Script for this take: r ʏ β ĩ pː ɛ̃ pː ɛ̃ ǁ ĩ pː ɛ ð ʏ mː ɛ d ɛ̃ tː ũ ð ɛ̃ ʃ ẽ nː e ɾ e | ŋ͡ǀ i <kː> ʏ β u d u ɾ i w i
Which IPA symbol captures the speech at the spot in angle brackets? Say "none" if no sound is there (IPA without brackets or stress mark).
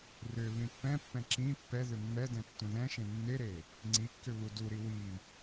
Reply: kː